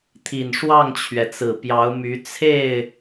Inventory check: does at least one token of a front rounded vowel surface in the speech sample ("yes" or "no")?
yes